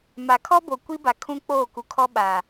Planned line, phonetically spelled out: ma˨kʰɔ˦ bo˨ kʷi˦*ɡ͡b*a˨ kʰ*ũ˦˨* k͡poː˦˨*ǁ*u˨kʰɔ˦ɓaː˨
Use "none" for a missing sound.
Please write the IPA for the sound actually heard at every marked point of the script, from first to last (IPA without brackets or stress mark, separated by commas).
b, ũ˦, k